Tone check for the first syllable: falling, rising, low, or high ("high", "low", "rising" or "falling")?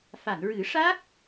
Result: low